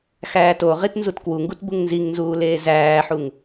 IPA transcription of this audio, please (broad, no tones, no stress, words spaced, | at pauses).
xæːto ʁitnzutkwuŋɡut buŋnziŋnzuːleː zæːħuŋ